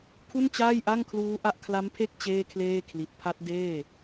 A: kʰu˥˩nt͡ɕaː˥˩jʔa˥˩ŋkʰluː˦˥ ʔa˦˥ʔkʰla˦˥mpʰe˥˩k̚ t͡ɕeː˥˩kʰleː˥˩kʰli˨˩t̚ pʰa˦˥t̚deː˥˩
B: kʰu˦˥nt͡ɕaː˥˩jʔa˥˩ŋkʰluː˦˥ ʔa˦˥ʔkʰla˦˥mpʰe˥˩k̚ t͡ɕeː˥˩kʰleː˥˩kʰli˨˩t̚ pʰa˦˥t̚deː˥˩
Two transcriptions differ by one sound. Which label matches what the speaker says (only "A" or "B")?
A